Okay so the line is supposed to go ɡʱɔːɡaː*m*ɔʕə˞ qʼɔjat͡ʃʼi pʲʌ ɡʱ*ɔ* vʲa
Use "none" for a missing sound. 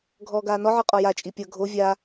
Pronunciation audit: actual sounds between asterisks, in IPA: n, o

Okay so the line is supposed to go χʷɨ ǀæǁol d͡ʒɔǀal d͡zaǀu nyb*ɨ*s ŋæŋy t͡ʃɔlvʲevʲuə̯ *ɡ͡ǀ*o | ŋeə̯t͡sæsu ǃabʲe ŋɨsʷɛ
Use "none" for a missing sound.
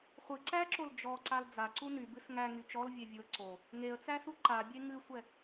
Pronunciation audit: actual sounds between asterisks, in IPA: ɨ, ǀ

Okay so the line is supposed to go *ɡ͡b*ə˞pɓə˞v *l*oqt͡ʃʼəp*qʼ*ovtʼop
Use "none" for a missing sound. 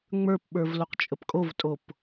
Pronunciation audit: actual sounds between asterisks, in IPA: ŋ͡m, l, kʼ

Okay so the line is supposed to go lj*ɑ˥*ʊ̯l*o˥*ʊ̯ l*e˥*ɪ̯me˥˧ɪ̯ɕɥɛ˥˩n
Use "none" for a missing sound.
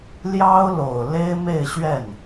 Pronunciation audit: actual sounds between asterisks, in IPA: ɑ˥, o˨˩, e˥

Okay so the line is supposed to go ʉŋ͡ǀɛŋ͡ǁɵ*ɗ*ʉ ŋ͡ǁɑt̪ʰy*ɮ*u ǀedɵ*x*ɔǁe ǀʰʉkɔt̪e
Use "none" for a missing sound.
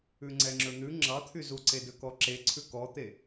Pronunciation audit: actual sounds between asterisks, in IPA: n̪, z, k

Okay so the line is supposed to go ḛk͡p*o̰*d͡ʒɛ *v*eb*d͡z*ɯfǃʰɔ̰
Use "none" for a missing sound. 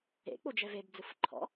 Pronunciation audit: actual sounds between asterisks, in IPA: o, v, d͡z

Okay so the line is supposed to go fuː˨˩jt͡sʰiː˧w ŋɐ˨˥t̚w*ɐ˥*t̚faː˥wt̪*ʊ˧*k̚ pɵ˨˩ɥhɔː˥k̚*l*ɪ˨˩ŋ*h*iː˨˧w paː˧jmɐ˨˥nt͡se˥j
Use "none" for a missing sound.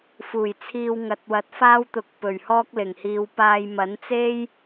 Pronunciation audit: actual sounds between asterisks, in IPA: ɐ˨˥, ʊ˨˥, l, h

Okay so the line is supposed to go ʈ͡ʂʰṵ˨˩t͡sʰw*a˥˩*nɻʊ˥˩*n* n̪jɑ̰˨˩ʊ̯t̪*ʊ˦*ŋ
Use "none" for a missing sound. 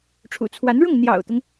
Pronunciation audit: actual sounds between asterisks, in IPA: a˧˥, ŋ, ʊ˦

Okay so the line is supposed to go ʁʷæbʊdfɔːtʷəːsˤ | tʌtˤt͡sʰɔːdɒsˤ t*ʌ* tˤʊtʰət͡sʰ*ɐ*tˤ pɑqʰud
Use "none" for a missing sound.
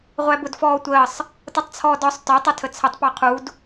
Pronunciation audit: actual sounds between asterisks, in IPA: ɒ, ə

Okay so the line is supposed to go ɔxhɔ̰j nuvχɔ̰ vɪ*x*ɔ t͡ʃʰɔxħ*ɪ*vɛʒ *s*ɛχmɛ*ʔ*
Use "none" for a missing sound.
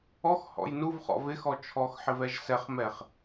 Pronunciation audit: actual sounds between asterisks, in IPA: x, ɪ, s, χ

